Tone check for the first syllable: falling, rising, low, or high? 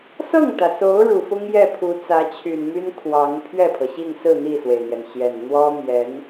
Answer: falling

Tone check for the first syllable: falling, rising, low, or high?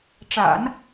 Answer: low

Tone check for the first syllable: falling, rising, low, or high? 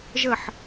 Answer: falling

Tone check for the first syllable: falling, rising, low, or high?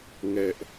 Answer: high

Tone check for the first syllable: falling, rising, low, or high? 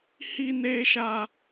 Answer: high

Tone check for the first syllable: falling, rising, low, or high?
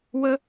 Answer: high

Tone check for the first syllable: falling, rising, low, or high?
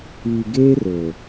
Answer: low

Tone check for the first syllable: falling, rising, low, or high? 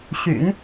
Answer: low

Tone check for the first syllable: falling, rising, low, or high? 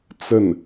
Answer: falling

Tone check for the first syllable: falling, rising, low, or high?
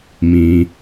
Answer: low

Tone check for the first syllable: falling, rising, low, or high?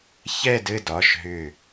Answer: falling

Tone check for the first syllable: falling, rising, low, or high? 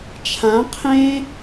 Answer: rising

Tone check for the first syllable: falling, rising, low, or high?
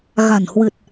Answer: low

